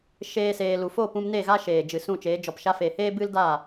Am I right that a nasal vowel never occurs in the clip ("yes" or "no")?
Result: no